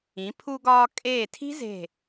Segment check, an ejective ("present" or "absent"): present